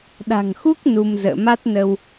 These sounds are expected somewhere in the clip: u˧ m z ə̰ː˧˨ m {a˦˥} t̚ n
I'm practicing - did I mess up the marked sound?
no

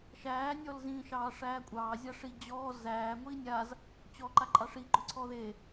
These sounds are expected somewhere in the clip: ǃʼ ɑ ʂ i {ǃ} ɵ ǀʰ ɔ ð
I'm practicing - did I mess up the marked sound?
yes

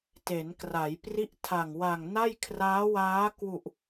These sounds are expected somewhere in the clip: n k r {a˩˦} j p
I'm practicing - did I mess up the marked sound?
no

